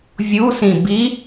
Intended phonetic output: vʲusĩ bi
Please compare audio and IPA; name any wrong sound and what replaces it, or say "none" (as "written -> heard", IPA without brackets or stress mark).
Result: none